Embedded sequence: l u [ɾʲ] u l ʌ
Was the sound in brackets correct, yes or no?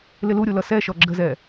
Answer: yes